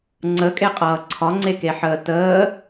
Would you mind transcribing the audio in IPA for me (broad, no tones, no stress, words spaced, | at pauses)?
ŋ͡ǀəkʼeqʼʌː ǀʰɒŋ͡ǀekeħəː təː